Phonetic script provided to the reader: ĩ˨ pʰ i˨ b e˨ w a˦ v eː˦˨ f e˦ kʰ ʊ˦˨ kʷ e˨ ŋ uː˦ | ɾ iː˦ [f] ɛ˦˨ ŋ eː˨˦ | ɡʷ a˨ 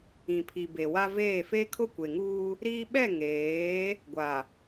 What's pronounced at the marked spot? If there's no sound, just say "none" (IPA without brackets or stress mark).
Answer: ɓ